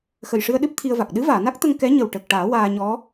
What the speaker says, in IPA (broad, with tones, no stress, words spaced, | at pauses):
xə˨˩jʂɨ˧ə̯ɗɨ˦˥p̚ t̪ʰi˧ə̯va˨˩k̚ ɗɨ˧˥ vaː˨˩˨na˦˥k̚t̪ə˧ŋ kɛ˧˥ ɲə˨˩wʈə˨˩k̚ʈaː˨˩˦ waː˧ɲɔ˧˥